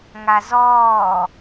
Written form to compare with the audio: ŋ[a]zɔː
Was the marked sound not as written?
no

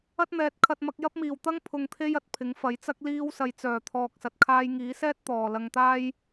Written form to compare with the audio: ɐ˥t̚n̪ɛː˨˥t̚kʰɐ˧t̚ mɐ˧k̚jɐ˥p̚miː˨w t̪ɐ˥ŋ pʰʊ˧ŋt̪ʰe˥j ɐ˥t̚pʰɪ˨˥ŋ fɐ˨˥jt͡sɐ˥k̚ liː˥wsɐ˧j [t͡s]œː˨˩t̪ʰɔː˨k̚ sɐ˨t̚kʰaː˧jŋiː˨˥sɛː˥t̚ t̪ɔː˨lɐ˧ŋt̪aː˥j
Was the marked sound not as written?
no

